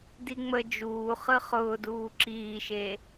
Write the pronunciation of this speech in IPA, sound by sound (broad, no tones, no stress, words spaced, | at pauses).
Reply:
diŋ͡mə d͡ʒuː χɯχʊːduː ǁiːʃe